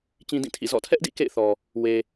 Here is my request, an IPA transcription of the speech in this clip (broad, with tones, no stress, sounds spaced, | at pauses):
t͡ɕ ĩ˦ d ĩ˦˨ tʰ ḭ˦˨ z ɔ̰˦˨ tʰ ɛ˦ ʔ d ḭ˦˨ k ḛ˦˨ ɪ̯ θ ɔ˨ | w e˨